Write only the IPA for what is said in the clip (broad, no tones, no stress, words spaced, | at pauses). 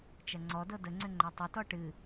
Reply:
t͡ʃɐŋ͡ǀɔdɤ dəŋ͡ǀʏ ŋ͡ǃatˤʏtɔ ʈɨ